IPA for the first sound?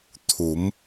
t̪ʰ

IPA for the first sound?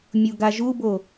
mʲ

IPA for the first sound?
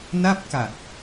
n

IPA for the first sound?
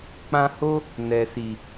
k͡p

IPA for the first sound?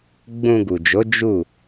ɡ͡b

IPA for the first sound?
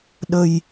ɗ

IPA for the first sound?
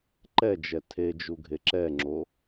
ǃ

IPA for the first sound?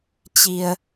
t͡ɕ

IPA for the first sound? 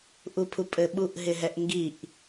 ʔ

